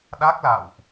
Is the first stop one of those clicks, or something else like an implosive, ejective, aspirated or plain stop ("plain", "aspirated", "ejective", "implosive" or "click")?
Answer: implosive